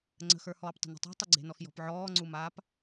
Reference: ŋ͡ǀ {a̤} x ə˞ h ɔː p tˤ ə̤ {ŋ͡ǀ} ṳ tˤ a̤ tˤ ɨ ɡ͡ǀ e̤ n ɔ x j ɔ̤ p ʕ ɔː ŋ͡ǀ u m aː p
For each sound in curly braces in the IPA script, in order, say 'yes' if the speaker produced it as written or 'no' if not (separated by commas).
no, no